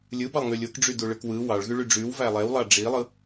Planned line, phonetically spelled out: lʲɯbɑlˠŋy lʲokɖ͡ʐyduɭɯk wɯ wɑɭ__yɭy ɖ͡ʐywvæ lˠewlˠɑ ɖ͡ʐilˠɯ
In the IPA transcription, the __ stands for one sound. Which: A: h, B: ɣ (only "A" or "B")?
B